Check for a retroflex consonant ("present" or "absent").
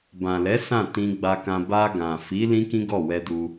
absent